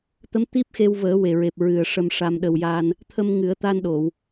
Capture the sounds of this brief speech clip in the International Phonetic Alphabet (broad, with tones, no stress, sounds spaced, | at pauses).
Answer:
t̪ ə˧˥ m t̪ i˦˥ p̚ x e˧ w v əː˨˩˦ w e˨˩ ɹ e˨˩ p̚ ɹ ɨ˨˩ ə̯ ʂ ə˧ m ʂ a˧ m ɗ ə˧ w j a˧ n | t̪ʰ ə˧ m ŋ ɨ˨˩˦ ə̯ t̪ a˧ n ɗ o˨˩˨ w